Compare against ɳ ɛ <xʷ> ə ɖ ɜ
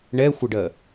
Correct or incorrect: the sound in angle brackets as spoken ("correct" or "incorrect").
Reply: correct